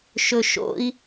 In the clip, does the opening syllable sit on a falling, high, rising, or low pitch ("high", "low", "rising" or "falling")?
low